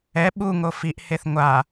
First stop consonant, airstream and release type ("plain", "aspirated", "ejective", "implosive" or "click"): implosive